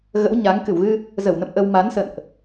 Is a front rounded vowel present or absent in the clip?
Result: absent